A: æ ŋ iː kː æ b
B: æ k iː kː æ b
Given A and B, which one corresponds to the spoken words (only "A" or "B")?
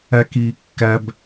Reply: B